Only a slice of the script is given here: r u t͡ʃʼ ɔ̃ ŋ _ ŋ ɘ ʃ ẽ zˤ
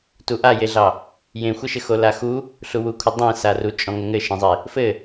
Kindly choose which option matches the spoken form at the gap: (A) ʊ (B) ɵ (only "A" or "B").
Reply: A